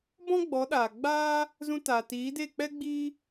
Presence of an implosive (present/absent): present